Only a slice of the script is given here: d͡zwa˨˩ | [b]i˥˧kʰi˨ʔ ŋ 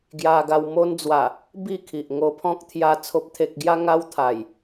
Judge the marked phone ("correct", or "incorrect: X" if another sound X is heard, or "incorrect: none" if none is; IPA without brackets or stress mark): correct